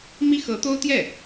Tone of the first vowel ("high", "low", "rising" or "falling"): high